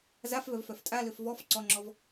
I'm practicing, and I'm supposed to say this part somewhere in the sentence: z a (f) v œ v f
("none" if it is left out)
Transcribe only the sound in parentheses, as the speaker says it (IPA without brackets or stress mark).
f